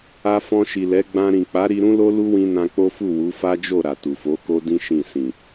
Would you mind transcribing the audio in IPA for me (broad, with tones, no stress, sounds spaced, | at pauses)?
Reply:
a˧ f ɔ̃˧ ʃ i˨ l ɛ˨˦ ɡ͡b ã˧ ɾ ĩ˨ k͡p a˨˦ ɾ i˧ ɾ ũ˦ l o˦ l u˦ w ĩ˧ n ã˧ k͡p o˦ f u˦˨ w u˨˦ f a˦ d͡ʒ o˦˨ ɾ a˨ t u˨ f o˨˦ k o˦ d ĩ˦ ʃ ĩ˦˨ s ĩ˨